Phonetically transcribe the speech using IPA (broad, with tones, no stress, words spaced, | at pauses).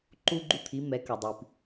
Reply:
ǃu˦ɡ͡ǃu˦t̪ʰi˨˦mɛ˨˦ kɐ˩dˤi˩p